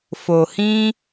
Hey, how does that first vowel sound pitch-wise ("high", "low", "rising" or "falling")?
low